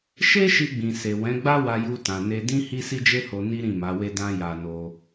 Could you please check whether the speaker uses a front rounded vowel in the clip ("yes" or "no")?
no